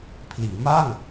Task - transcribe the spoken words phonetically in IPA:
pʰliː˩˦ma˥˩ŋ

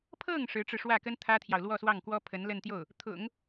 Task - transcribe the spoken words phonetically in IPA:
pʰɤ˥˩ŋ ʂɻ̩˧˥ʈ͡ʂɻ̩˧ʂwä˥˩kə˥n t̪ʰä˥t̪ʰjɑ˨ʊ̯ lwɔ˥˧swɑ˥˩ŋkwɔ˥ pʰə˧˥nlə˥˧n t̪jo˥˩ʊ̯ | t̪ʰʊ̰˨˩˦ŋ

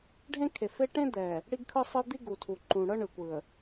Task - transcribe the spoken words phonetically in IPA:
ɖʱẽ˦kʰe˨fe˦ ʈẽ˦d̪ɛ˨ | ɽi˦ɡkʰɯ˦sˤɯ˦ d̪i˦ɡu˨tʰu˨ ǃũ˨ ɽɤ˦ɳɯ˨kʷɯ˨ə̯

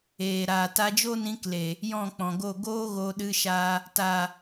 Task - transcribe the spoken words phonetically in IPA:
eː˨ɾaː˨ ta˧ d͡ʒo˦nĩ˧kle˨ | jɔ̃˦˨k͡pɔ̃˨ɡo˦˨ ɡoː˦ ɣo˧ɗɨ˧ʃa˧ | ta˨

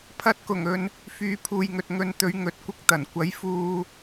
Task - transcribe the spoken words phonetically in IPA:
pʰɐ˧t̚kʊ˨˩ŋɵ˨n | fyː˨˧pʰuː˨jŋɵ˨t̚ ŋɵ˨˧nt̪ɵ˨˧ɥ ŋɵ˨t̚kʷɪ˧k̚t̪ɐ˨˩n kʷɐ˨˥jfuː˧

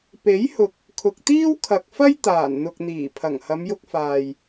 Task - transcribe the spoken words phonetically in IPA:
pe˨˥jhʊ˨k̚ | kʰʊ˨k̚t̪iː˥wkʰɐ˨k̚fɐ˥j t̪aː˨˩nn̪ʊ˨k̚ n̪iː˨˩pʰɐ˨˩ŋ hɐ˨˧mjʊ˧k̚faː˨j

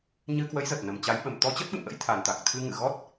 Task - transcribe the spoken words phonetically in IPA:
ɲɨ˧kwə˨˦jzə˨˩t̚ nə˨˩mt͡ɕa˨˦jɓə˨˩m t̪ɔ˧t͡ɕə˦˥t̚ɓɨ̰˧˨mʔə̰˧˥j t̪ʰa˨˩nt̪a˨˩k̚t̪ʰɨ˧ŋɨ̰˧˨ ɣɔ˦˥t̚

